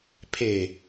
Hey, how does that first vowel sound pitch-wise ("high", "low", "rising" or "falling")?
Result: low